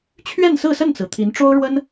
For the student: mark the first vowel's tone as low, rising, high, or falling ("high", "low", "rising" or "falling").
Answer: falling